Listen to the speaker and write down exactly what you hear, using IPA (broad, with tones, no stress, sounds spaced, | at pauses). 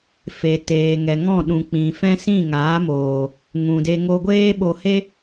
f e˨ t eː˨ ŋ ɛ˨ ŋ ɔ̃˦˨ ɗ ũ˨ k͡p ĩ˨ f ɛ̃˦ s ĩ˦˨ ŋ aː˨˦ m oː˨ | ŋ ũ˨ d e˧ ŋ o˧ ɡʷ eː˦ ɓ o˧ h e˦